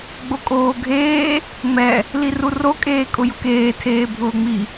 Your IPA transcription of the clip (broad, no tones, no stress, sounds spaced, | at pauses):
ɡ͡b o kʼ oː ɡʱ eː | ŋ͡m ɛ | l i r u r o kʼ eː kʼ ʊ j ʊ k eː tʰ eː bʱ ʊː ŋ͡m i